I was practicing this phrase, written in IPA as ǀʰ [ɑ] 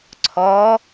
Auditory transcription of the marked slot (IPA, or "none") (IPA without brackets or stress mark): ɔ